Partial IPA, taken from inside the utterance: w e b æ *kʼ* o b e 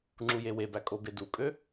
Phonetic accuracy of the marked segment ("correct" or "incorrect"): correct